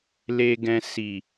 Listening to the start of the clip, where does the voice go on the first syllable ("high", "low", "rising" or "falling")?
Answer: low